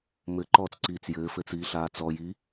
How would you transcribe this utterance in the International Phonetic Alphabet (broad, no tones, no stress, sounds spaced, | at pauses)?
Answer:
m ɘ ǃ ɔː t͡s ǀ iː t͡s j ɘː f ɘː t͡s iː ɬ aː t͡s ɔ j i